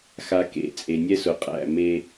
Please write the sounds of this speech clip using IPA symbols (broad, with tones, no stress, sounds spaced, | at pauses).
x a˨ k ḛ˨ t͡sʼ e˨ nʲ ɛ˦ s ʊ˨ qʼ æ̰˦˨ m e˦